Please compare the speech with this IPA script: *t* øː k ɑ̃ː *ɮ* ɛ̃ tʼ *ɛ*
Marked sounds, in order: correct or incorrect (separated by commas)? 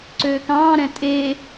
incorrect, incorrect, incorrect